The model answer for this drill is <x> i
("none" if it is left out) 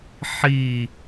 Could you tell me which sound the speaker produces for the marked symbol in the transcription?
ħ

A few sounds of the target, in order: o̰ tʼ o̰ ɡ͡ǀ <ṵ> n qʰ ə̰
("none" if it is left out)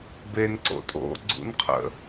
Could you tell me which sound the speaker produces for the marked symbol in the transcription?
ṵ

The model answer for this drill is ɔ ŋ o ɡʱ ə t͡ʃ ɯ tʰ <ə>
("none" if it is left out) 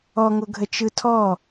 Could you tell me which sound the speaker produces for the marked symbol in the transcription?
ɔ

